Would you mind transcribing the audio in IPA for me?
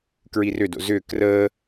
kɹirʏdo̰ zʏ krəː

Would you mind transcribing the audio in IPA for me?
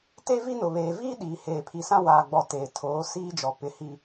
te˦vi˦nʊ˨ βeː˨viː˦ ɗiː˨heː˨pʰi˨sã˦ waː˨ɡ͡bɔ˨ teː˨ tʰoː˨˦ siː˦d͡ʒɔ˨ pɪ˦˨hi˦

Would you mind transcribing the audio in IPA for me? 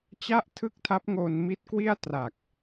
t͡ɕa˥˩ʔtʰɯ˥˩k̚tʰa˦˥p̚ ŋoː˧nmi˦˥t̚ kwi˥˩a̯tra˨˩k̚

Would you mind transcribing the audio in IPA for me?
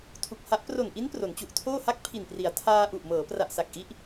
tʰu˨˩k̚ha˦˥ʔ pro˨˩nʔi˦˥n pro˩˦nt͡ɕu˨˩ʔtʰoː˥˩ha˥˩k̚ pʰi˨˩npri˩˦a̯ tʰaː˧ ʔu˨˩ʔmɤː˩˦pra˨˩ʔsa˨˩k̚ ʔi˦˥ʔ

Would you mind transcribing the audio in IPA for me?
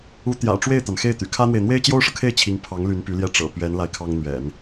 u˧˥t̪jä̰˨˩ ʈ͡ʂwe˥˩ɪ̯t̪a˩nxe˥˩ɪ̯t̪y̰˨˩ kʰä˥n̪we˨ɪ̯ n̪we˥ɪ̯t͡ɕjo˥ʊ̯ʂɤ˨kʰe˥˩ɪ̯ t͡ɕʰi˧˥ŋpʰɑ˧˥ŋ ly˧˥npy˧˥ljɛ˥˩ ʈ͡ʂɤ̰˨˩pɥɛ˧˥n la˥˩ɪ̯kʰɑ˥ŋ n̪ɥɛ̰˨˩˦n

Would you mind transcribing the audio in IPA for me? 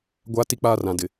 ɡʷa˦ ti˦k͡paː˦rã˨dɪ˨

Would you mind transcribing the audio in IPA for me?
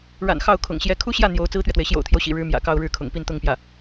ɻa̰˨˩n xɑ˥˩ʊ̯ kʰʊ̰˨˩ŋɕjɛ˧˥ kʰu˥ɕjä˥˩ n̪jo˧˥ʊ̯ t͡sɹ̩˥t̪ɥɛ˨t̪we˩ɪ̯ ɕjo̰˨˩ʊ̯t̪ʰjo˦ʊ̯ɕḭ˨˩ ɻɻ̩˧˥mjä̰˨˩ kɑ˥˧ʊ̯ɻɻ̩˥˩kʰʊ̰˨˩ŋpi˥˧n t̪ʊ˥˧ŋpjä˥˩

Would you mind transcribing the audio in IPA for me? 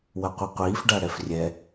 wɐqʷɨqʷiːf ɖaɽɛfrʲɛ

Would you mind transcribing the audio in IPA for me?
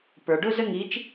pə˞˨ɖʊ˥ zə˥ŋi˧˥t͡ʃ

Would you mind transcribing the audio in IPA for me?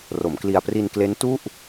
ro˩˦mkli˧a̯ pri˧nkle˦˥n tu˥˩ʔ

